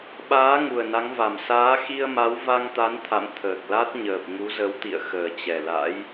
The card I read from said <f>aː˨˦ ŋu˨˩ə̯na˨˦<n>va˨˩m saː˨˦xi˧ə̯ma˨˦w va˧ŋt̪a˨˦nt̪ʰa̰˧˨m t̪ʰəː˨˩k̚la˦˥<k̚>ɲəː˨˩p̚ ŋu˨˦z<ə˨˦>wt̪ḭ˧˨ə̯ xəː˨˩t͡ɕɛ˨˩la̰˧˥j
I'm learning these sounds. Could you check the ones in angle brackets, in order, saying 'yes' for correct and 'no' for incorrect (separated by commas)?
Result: no, no, no, yes